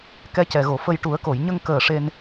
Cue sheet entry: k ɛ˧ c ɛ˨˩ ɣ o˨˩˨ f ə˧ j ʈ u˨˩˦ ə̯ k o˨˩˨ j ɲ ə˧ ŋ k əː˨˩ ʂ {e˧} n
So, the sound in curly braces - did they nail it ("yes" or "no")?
yes